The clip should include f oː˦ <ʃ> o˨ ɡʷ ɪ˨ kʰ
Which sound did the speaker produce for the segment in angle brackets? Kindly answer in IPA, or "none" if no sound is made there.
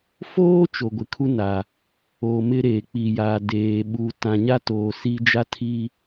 t͡ʃ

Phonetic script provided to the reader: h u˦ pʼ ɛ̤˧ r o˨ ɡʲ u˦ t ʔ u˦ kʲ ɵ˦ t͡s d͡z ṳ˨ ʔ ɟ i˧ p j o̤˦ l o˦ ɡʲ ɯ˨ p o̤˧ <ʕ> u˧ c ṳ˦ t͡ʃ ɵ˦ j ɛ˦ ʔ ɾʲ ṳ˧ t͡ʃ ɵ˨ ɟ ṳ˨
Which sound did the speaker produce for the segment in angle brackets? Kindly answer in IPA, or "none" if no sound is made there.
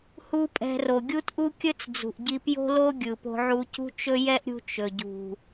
ʕ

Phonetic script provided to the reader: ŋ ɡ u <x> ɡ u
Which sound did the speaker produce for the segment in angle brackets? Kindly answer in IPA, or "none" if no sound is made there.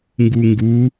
ŋ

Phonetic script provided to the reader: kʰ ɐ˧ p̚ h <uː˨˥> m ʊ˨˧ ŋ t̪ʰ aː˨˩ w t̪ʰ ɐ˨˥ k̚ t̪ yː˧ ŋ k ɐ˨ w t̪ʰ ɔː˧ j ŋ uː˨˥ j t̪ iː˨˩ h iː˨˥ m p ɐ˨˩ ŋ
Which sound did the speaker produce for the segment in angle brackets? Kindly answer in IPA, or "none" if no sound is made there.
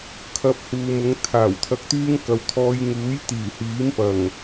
uː˨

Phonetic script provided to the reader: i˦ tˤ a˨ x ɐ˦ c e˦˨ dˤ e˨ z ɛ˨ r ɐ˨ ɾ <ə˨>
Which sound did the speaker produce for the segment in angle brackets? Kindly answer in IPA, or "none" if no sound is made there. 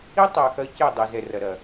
ɐ˨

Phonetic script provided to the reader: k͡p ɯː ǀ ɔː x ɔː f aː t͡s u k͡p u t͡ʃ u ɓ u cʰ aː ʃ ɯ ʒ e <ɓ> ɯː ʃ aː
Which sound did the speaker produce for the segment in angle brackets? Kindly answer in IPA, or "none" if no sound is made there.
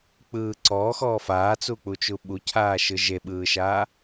ɓ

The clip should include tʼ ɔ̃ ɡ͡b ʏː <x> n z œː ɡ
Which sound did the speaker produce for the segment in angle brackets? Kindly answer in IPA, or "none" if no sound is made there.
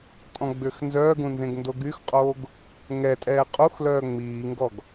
x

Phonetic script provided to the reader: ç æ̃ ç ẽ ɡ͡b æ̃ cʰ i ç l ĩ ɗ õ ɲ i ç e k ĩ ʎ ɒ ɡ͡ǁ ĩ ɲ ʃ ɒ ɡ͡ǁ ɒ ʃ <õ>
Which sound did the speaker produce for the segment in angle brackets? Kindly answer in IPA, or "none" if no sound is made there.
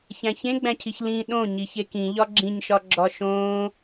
õː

